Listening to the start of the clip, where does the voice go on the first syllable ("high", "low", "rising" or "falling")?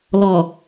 low